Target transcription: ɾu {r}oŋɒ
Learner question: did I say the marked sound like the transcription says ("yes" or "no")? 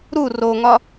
yes